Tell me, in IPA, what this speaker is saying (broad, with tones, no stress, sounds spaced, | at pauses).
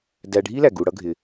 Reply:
d æ˧ ɖʱ i˦ l æ˨ ɡ u˧ ɽ ʌ˦ ɡʱ ɪ˧